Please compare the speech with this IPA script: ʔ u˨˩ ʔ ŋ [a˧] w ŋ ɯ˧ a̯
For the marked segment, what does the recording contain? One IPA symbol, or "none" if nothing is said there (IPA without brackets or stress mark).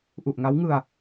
a˦˥